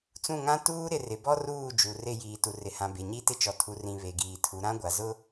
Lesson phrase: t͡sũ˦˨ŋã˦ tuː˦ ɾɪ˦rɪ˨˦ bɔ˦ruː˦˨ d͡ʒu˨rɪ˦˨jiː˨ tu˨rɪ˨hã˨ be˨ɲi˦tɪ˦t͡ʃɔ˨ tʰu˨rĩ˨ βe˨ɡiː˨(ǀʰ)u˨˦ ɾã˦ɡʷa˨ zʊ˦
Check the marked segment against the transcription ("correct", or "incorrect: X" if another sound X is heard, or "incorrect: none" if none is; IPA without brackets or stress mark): incorrect: tʰ